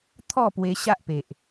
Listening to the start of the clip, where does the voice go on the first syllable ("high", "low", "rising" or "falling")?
falling